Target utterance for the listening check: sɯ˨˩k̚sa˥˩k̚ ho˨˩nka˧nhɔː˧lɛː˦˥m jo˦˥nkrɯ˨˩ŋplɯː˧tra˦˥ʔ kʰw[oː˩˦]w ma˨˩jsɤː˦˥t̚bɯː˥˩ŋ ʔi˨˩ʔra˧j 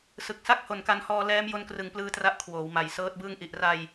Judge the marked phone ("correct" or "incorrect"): correct